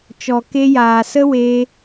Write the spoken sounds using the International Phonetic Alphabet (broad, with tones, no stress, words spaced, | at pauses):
t͡ʃɔ˨ke˧jaː˨sə˦ we˧